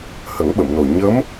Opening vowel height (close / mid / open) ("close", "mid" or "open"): mid